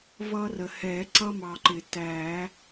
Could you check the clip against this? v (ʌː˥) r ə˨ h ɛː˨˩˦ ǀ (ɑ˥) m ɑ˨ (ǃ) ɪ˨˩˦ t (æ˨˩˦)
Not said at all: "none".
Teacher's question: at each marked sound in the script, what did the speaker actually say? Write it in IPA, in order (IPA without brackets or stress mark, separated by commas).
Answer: ʌː˥, ʌ˥, ǃ, æ˨˩˦